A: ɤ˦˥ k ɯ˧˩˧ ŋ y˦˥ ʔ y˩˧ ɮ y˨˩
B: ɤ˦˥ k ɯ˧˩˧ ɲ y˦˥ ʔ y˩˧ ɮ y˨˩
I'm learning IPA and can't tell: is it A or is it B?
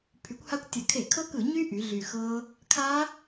B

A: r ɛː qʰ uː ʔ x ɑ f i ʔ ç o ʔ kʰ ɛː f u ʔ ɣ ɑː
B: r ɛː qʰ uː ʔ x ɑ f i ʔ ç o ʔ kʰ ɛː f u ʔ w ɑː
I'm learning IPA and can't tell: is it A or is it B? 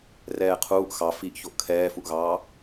A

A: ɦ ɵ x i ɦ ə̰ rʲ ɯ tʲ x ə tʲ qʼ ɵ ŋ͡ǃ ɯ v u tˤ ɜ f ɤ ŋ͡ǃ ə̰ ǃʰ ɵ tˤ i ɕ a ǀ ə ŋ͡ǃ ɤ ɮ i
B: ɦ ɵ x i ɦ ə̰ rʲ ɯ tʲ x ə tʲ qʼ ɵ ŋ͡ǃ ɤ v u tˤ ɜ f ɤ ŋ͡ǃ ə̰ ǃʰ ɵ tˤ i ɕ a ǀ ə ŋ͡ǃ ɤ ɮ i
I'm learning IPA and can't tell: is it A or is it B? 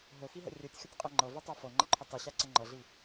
B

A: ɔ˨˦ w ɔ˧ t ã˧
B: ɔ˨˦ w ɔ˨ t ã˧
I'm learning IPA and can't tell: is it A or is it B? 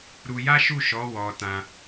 A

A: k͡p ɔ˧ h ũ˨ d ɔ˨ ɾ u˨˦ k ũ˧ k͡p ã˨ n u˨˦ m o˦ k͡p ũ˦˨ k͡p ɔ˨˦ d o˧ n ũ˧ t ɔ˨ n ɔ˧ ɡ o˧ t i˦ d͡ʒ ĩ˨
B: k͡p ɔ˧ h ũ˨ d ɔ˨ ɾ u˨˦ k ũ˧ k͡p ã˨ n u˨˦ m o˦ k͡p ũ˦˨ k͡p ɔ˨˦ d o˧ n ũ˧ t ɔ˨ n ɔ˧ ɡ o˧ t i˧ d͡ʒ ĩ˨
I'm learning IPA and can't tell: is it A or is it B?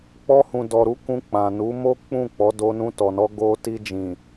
B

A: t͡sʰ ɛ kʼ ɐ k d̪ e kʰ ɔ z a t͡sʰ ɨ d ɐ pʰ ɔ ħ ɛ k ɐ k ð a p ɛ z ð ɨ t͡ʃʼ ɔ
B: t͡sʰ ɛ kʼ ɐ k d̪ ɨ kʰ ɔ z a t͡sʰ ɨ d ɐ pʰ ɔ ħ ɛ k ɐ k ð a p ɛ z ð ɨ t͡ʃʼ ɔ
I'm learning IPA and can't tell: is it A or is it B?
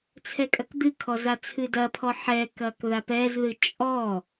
B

